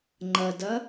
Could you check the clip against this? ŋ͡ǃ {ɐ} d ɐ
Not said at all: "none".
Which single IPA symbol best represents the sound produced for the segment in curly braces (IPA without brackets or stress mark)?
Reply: ɐ